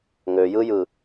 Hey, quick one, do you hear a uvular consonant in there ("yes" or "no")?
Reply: no